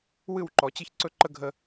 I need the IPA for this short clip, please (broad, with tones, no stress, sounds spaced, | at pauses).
w ɨ˦˨ w ǃ ɔ˨ t͡ɕ ɨ˦ ç ǀ ɵ˦ ǃ ə˦ ɡʱ ə˨